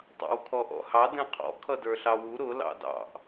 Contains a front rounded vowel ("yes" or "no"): no